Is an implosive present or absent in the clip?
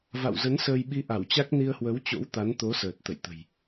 present